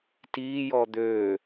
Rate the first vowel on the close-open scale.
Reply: close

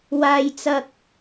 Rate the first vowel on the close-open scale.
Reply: open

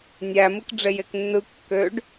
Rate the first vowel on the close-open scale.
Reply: open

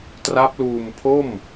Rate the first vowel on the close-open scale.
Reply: open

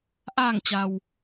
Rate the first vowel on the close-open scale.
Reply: open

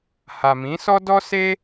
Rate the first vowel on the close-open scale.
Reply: open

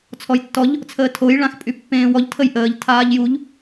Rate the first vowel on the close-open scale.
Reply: mid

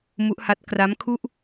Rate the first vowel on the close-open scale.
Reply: close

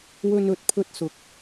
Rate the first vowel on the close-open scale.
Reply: mid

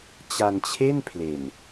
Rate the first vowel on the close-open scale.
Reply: open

